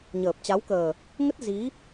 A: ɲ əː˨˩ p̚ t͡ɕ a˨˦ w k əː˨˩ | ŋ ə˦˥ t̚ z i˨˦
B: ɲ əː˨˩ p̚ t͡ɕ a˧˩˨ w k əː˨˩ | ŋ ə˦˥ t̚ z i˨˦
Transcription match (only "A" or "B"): A